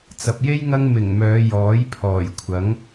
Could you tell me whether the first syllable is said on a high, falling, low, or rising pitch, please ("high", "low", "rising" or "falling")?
low